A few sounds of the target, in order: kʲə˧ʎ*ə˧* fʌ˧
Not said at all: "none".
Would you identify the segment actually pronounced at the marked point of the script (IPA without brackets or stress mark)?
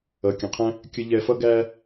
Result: ɛ˧